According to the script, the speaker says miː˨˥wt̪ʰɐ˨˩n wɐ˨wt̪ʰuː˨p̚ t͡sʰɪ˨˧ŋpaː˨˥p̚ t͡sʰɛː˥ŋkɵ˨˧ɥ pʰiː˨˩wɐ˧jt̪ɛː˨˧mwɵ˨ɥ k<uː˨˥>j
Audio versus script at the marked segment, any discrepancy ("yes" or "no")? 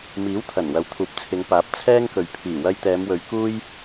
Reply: yes